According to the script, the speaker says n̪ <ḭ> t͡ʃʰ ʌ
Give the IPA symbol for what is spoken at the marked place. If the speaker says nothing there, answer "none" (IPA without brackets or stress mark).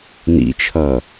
ḭ